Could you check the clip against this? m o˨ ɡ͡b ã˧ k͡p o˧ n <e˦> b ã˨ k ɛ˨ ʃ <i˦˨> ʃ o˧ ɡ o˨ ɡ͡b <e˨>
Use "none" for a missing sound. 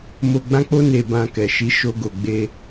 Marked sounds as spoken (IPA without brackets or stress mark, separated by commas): e˨, i˨˦, e˧